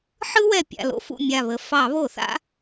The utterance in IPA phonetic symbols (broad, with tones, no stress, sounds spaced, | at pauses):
ħ ɯ˦ w ɛ˧˩ pʲ a̰˧˩ l o̰˦ f ṵ˧˩ mʲ a˧˩ β ə˧˩ f ɑ˧˩˧ β o˧˩˧ θ a̰˦